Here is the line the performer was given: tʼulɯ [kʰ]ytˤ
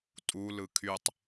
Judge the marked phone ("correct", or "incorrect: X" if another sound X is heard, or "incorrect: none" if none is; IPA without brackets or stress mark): correct